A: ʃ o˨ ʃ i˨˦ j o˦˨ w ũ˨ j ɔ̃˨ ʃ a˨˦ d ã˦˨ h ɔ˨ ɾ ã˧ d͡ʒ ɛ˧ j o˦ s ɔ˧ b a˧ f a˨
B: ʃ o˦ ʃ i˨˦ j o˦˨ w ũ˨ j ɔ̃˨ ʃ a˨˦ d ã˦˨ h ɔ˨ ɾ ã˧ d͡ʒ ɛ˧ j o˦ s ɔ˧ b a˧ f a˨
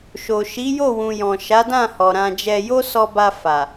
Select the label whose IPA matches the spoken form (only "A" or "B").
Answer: A